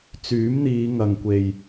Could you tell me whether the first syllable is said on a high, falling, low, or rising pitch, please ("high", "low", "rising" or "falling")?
rising